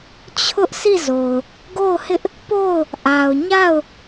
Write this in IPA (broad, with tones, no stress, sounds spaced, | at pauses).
t͡ɕʰ ʊ˦ ʔ s i˦˨ z o˨ ʊ̯ | ɡ o˦˨ ʊ̯ h ɪ˦ ʔ | p o˦˨ ʊ̯ | ʔ a˨ ʊ̯ ɲ a˦˨ ʊ̯